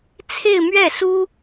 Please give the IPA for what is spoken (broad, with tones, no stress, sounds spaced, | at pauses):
t͡sʰ e˥˧ ɪ̯ m ɥ ɛ˥˩ s u˥